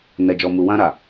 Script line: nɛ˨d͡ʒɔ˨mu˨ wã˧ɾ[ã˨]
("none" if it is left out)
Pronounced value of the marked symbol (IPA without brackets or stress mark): a˨